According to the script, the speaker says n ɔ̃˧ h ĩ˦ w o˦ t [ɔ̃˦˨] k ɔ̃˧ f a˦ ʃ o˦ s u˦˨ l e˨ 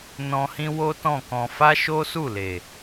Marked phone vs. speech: correct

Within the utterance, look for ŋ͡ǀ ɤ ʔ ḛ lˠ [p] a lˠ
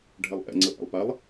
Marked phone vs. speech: correct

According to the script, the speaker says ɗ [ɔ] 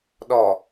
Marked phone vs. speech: correct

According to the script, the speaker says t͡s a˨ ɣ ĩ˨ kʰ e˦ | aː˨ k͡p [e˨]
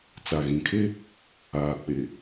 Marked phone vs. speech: correct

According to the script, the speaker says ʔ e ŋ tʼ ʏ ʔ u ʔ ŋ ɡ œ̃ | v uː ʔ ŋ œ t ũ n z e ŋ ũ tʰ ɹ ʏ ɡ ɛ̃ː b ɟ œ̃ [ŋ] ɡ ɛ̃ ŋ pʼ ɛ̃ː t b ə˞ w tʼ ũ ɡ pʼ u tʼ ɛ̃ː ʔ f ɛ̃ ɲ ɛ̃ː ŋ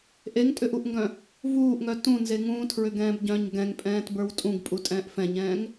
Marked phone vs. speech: incorrect: ɲ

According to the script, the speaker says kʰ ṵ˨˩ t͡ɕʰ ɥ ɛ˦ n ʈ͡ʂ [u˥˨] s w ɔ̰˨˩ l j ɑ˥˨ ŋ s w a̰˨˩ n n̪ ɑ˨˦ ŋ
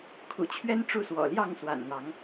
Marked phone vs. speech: correct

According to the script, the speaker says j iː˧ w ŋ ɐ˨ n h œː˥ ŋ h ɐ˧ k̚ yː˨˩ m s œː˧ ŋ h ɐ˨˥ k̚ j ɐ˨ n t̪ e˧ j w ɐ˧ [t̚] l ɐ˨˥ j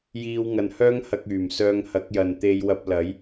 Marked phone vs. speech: incorrect: p̚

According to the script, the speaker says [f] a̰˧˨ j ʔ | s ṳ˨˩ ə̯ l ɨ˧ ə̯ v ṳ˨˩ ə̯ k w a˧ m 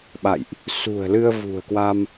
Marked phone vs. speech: incorrect: ɓ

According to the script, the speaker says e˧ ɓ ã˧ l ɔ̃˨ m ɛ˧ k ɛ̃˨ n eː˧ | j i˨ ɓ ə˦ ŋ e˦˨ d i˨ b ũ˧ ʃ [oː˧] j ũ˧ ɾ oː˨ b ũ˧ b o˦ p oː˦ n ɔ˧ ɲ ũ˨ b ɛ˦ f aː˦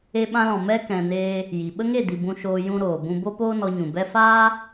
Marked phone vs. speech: correct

